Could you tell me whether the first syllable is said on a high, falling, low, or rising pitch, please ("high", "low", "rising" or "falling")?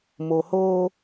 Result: low